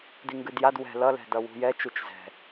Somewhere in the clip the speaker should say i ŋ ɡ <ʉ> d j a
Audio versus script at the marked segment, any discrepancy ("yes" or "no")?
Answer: no